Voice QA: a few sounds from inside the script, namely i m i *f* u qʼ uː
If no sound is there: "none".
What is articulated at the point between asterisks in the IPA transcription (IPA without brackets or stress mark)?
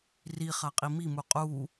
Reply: m